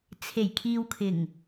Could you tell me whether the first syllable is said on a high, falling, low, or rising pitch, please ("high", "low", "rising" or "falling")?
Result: low